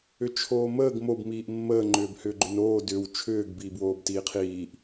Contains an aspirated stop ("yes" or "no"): yes